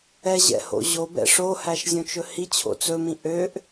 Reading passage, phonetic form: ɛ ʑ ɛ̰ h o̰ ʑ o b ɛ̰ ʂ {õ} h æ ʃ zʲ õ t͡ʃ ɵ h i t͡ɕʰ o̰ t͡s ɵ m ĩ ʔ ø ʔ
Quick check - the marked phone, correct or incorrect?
incorrect